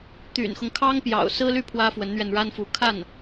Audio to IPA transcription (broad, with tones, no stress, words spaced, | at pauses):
t̪y̰˨˩nxʊ˦ŋ kʰɑ˥ŋpjɑ̰˨˩ʊ̯sɹ̩˥ly˥˩ pʰwä˥fwə˧˥nn̪ɥɛ˧n ɻa˥nfu˧˥kʰa˥˩n